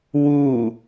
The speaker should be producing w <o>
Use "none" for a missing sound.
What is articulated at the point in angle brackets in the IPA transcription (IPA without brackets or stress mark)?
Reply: u